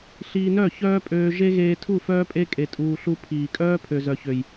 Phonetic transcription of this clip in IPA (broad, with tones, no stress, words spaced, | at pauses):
ɬiː˧nœ˦˨ çœː˦pʼøː˧ ʒe˦ɣeː˧ tʰu˦˨fœː˦pʼe˦ kʼe˧tʼuː˧ɬu˦ pʰiː˨kʼœː˦ pʰø˨zœ˨çø˨j